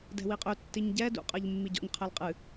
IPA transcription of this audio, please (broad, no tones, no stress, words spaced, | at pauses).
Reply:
dɛ̤wiqʼø tːiɲɟɛ dṵqʼɜʎ mːiɟɔ̰ɲ qʰɛlqʼɨ